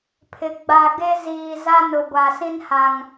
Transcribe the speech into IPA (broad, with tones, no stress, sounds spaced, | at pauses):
pʰ ɪ˨ ɡ͡b a˨ ɡ e˦ z iː˨ z a˦ n ʊ˨ ɡʷ a˨ s ĩ˦ n h a˨ ŋ